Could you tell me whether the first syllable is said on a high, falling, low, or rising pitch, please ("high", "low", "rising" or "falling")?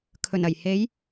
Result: low